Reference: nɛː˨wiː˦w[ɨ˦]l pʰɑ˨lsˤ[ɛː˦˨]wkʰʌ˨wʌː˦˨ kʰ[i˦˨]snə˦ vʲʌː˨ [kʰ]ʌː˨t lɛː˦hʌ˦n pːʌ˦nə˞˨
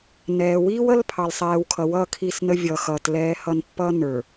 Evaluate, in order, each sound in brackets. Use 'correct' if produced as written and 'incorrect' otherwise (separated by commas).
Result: incorrect, incorrect, correct, incorrect